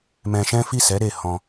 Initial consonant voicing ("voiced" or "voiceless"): voiced